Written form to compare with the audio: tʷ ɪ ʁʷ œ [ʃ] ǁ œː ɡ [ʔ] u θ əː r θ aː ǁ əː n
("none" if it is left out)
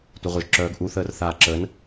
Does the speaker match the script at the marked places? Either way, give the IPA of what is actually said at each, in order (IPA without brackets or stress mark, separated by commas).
ʒ, ʔ